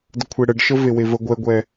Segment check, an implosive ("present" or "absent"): absent